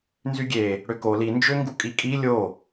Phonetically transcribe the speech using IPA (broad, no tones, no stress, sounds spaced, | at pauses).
n z y ɡʲ e | ɽ ø k o l i n d͡ʒ ø ŋ ɡ u kʼ i kʼ i lʲ o